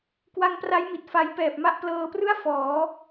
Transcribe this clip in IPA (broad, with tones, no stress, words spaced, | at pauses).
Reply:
kwa˧ŋpra˦˥jmi˨˩t̚ fa˦˥j pɛː˨˩p̚ma˥˩ʔ plɤː˧prɯ˥˩a̯ fɔː˩˦